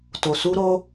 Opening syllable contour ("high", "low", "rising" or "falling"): low